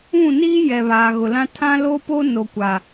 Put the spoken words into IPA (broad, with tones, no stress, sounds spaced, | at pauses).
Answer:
ũ˦˨ n iː˦ j ɛ˨ β aː˨ ɣ ʊ˨ l ã˦ tʰ ã˦ l o˦ p o˦ n o˨ kʷ a˨